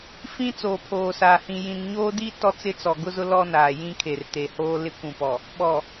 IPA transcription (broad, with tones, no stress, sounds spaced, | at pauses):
f ĩ˦ t͡s oː˨ pʰ oː˨ s aː˨ h ĩ˨ j ĩ˨ n ɲ oː˦ d i˦ t ɔ˦ t͡s ɪ˦ t͡s ɔ˨ ɡ ʊ˦ z ʊ˦ l ɔ˦ n aː˨ j ĩ˦ kʰ e˨ r t e˨ h oː˦ l ɪ˦ kʷ ũ˨ p ɔ˨ | ɓ ɔ˨